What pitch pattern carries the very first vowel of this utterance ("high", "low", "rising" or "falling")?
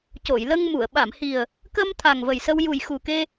low